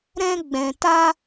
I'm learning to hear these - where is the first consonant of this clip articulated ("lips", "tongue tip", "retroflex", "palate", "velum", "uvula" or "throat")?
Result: tongue tip